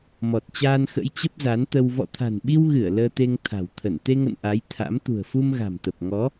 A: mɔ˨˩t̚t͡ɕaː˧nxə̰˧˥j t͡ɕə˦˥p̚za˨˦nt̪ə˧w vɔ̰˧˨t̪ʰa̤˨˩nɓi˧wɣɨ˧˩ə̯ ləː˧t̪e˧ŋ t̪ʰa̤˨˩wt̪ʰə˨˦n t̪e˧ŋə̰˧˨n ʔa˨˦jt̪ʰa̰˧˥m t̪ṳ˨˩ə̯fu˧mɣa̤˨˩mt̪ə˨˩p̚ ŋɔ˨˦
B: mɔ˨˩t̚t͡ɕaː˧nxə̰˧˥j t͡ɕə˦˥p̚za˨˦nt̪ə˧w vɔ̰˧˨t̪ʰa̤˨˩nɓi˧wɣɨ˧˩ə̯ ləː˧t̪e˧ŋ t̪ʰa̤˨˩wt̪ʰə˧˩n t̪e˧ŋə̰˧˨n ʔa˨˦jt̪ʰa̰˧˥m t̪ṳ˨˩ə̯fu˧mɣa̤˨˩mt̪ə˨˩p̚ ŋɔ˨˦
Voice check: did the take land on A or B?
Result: B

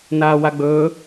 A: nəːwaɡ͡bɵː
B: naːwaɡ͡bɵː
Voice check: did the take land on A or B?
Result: B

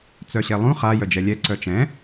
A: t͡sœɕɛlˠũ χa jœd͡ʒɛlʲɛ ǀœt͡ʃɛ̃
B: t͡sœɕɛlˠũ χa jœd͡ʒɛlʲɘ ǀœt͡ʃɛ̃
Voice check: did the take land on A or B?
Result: A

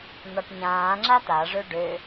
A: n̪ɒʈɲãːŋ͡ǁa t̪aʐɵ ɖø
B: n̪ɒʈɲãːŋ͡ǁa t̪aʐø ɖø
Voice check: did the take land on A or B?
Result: B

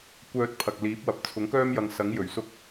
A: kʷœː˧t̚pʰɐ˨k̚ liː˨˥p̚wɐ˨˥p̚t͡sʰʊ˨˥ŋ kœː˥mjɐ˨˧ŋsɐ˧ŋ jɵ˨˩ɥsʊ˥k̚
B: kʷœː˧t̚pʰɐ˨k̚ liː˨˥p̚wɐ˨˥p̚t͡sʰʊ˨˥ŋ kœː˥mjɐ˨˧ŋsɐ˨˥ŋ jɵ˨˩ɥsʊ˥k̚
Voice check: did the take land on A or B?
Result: B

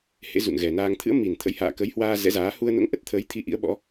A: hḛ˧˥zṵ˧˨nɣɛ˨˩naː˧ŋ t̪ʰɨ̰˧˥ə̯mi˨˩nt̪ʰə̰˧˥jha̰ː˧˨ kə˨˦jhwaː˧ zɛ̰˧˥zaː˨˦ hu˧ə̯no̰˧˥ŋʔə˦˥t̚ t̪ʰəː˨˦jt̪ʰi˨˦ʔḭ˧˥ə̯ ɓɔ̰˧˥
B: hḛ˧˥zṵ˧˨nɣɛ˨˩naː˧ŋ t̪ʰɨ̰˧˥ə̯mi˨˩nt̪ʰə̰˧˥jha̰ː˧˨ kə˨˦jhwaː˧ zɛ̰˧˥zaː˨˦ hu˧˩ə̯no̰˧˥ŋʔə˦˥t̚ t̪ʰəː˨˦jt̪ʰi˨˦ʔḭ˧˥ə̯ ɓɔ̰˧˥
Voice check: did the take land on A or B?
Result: A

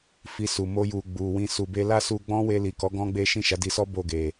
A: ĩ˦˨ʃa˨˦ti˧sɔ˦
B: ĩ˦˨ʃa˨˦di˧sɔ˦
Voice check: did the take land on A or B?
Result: B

